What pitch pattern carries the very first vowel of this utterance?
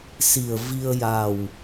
low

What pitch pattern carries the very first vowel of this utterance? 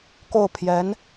falling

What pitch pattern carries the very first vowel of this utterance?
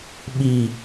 low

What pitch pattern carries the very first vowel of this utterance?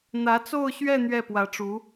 rising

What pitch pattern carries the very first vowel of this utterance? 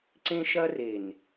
high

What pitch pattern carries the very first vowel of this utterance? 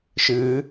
rising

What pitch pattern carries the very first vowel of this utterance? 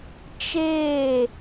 falling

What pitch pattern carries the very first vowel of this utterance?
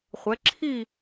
rising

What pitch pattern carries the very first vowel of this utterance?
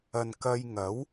low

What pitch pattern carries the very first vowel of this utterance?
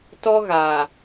high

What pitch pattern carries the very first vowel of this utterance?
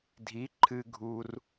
rising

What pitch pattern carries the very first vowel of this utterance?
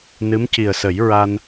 rising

